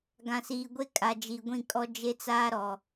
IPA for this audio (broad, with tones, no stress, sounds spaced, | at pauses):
ɡ ã˨ s iː˨ ɡʷ e˦ kʼ a˨ d͡ʒ i˨ ɡʷ ĩ˦˨ kʼ ɔ˦ d͡ʒ e˦ t͡s aː˦ ɾ ɔ˨